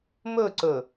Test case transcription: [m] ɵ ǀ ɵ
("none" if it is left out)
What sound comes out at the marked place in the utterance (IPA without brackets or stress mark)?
m